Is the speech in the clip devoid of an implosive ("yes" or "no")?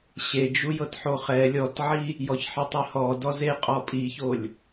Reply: yes